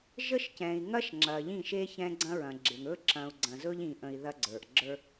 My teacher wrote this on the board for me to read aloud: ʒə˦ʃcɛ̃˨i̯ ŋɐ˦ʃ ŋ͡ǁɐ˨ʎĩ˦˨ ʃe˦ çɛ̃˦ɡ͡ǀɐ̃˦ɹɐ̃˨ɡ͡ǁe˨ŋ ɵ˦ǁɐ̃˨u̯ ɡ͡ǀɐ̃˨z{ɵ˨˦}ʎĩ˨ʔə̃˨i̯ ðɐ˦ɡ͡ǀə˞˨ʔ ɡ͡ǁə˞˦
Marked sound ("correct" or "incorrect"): incorrect